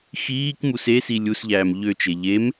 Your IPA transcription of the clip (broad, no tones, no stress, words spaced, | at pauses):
xiːkmus esi lʲusʎæːm ʎøt͡ʃe ʎem